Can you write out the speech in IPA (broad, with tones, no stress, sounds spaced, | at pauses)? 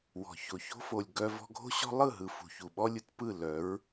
w ɔ̤˨ ç o˨ ç o̤˦ f o˨ lʲ ɡ œ˧ v ɔ̤˧ ɡʱ o̤˦ ɕ ɔ̤˦ lˠ ɯ˦˨ ɦ ɯ˨ f ṳ˨ ç u˨ ɓ ɔ˦ lʲ ɯ˨ t p ɯ˦˨ l œ˨˦ ɹ